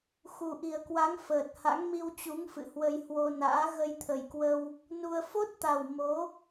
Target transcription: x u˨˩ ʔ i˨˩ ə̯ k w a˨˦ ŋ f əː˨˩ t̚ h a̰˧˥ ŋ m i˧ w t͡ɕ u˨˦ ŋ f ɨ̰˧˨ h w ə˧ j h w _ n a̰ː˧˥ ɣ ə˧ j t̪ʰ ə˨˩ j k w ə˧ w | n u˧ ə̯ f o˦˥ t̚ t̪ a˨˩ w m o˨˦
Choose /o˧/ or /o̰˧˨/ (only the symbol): o˧